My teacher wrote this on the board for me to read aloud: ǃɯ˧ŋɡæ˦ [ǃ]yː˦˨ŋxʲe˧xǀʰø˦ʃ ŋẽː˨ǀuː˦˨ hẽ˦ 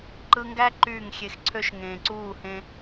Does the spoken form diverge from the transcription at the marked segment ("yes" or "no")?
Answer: no